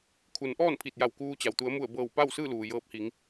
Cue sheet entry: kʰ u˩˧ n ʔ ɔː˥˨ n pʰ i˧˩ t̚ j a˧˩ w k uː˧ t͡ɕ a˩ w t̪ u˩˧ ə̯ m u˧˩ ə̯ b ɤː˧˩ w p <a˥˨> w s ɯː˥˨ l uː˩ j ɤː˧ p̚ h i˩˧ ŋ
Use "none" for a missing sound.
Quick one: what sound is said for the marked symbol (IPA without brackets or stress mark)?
a˥˨